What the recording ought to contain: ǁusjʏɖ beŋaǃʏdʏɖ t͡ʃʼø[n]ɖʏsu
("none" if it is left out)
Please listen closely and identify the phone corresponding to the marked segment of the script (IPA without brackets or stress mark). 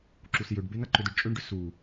ɳ